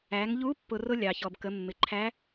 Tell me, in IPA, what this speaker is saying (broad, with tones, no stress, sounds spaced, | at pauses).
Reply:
æ˩˧ ŋ ʎ u˧˥ pː ʊ˧ r ʊ˥ lʲ ɑ˩ ç ɔ˩ b k ə˩˧ mː ɪ˩ ǃʰ æ˧˥